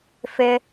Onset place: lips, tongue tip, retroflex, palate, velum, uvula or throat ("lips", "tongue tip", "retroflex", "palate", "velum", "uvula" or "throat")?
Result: lips